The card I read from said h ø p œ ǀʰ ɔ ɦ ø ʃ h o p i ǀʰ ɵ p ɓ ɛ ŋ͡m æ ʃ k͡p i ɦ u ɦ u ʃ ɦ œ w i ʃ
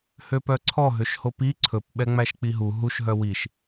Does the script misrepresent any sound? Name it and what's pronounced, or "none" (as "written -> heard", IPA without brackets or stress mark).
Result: none